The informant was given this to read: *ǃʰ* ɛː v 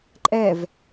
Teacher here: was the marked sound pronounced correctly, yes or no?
no